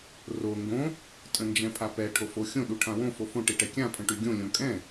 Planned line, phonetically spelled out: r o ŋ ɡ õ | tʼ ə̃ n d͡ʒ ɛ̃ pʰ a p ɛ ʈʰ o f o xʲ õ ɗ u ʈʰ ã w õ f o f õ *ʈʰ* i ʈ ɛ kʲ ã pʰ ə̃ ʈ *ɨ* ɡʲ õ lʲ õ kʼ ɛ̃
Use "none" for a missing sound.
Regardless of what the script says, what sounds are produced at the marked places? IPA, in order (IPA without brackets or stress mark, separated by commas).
ʈ, y